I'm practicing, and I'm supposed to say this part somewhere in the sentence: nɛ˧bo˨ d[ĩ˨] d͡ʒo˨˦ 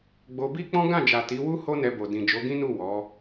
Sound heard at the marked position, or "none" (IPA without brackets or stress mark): ĩ˨